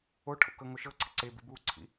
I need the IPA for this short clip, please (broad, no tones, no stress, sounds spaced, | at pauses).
o ʈʰ o̰ k ɤ ŋ o ʃ ɤ ǀ ə ǀ e b ḭ b u ǀʰ ḭ